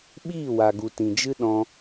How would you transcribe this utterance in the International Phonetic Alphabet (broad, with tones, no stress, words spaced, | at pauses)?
ɓiː˦˨wa˨ɡu˨ tĩ˨d͡ʒɨ˦ ɗɔ̃˧